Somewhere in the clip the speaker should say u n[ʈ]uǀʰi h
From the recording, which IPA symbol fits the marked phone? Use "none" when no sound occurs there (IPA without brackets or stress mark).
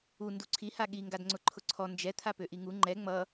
d